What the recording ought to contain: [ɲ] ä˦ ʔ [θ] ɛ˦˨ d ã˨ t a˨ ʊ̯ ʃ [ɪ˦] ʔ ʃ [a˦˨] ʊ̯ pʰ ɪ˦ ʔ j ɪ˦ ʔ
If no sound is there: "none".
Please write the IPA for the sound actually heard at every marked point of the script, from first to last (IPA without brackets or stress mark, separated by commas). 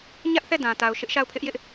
ɲ, θ, ɪ˦, a˦˨